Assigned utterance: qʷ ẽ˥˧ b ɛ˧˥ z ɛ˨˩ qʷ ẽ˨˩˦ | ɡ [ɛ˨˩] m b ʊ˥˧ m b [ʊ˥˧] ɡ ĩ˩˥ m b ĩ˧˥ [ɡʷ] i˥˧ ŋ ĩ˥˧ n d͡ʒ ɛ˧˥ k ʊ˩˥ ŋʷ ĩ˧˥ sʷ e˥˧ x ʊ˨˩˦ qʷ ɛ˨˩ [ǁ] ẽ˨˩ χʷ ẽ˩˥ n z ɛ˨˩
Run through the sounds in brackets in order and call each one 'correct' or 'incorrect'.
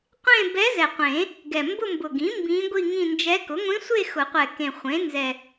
correct, incorrect: ʊ˨˩, correct, incorrect: k

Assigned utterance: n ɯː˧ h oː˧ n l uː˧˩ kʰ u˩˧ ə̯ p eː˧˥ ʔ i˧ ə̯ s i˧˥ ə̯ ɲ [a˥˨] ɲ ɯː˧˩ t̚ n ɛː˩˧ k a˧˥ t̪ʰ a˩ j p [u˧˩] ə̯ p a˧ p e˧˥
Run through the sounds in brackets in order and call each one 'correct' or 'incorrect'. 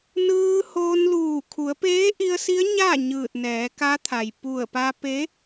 correct, correct

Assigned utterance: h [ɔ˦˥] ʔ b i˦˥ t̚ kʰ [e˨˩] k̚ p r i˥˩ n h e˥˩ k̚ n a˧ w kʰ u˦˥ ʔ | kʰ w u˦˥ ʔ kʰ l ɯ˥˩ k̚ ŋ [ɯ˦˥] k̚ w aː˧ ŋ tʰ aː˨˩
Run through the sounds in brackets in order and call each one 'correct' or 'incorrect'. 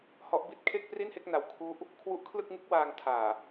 correct, incorrect: e˥˩, correct

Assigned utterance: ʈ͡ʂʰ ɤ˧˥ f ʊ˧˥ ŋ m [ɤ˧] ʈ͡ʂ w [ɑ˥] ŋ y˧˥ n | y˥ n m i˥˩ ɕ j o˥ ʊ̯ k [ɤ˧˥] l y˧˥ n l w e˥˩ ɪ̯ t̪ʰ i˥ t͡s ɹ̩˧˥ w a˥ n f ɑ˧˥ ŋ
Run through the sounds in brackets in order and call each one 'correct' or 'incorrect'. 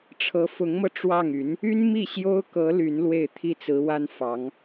correct, incorrect: ɑ˥˩, correct

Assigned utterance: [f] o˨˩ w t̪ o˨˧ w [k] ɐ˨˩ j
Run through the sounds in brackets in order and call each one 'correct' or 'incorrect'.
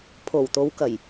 incorrect: pʰ, correct

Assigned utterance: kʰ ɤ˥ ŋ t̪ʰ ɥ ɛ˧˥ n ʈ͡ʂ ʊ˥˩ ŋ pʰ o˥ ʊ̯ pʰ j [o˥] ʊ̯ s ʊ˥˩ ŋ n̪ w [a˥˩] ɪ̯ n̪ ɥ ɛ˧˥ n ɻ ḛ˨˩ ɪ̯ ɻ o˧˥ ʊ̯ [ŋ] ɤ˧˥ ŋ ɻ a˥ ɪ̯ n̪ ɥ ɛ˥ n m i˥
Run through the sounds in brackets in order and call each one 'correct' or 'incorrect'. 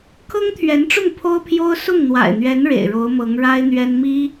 correct, incorrect: a̰˨˩, incorrect: m

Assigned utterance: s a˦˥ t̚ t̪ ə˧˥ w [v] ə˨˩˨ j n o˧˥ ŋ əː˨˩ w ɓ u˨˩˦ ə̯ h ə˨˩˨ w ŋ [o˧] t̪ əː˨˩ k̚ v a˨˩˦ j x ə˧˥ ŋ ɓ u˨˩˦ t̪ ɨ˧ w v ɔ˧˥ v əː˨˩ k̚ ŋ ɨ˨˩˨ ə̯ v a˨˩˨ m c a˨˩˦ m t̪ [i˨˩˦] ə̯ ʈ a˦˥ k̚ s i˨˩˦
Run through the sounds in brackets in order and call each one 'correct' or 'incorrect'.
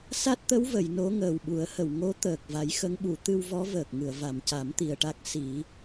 correct, incorrect: o˧˥, incorrect: i˨˩

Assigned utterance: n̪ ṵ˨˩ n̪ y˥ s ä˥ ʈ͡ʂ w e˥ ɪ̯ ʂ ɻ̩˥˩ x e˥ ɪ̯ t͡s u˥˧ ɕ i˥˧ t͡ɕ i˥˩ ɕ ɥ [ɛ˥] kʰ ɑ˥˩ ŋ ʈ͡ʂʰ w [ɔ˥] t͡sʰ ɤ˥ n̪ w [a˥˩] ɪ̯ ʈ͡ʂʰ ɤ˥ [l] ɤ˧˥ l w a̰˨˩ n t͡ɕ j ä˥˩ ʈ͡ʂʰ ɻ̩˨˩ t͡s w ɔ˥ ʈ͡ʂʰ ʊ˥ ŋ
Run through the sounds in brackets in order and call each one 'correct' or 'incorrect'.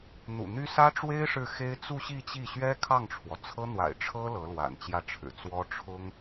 correct, incorrect: ɔ˩, incorrect: a̰˨˩, correct

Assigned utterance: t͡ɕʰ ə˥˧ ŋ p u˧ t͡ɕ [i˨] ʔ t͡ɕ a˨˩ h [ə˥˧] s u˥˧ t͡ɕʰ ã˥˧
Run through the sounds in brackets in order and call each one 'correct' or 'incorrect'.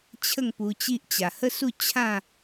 incorrect: i˦, correct

